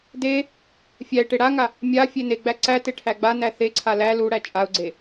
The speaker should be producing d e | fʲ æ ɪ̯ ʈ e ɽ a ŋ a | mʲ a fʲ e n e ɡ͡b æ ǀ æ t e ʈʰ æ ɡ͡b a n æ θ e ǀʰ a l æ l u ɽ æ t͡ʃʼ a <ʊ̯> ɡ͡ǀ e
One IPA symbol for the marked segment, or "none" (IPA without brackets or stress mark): ʊ̯